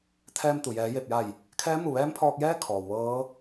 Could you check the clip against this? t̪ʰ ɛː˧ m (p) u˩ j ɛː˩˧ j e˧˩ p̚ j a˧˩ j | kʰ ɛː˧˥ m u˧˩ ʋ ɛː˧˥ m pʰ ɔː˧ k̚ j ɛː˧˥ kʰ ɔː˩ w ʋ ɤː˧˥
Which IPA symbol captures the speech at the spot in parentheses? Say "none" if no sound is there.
t̪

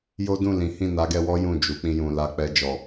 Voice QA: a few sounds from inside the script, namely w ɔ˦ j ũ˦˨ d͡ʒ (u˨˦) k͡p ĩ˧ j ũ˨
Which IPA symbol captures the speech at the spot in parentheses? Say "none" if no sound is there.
u˨˦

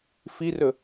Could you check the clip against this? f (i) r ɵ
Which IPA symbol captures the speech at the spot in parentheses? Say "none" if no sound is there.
i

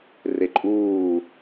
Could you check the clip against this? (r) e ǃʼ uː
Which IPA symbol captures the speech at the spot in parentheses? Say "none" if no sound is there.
r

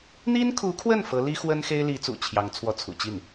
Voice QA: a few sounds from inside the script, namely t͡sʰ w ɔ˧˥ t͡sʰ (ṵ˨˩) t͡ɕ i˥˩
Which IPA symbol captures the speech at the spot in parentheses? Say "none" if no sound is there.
ṵ˨˩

